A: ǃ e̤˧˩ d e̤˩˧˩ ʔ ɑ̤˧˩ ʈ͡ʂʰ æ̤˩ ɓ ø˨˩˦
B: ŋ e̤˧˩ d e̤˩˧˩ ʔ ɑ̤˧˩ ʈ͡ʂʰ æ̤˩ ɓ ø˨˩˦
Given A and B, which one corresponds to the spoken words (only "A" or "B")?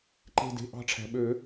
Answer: A